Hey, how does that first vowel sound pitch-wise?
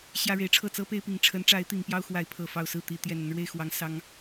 high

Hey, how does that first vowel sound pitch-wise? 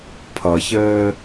low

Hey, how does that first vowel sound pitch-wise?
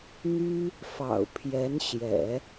high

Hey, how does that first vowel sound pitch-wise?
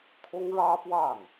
high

